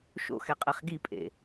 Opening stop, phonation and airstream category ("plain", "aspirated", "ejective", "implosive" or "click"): ejective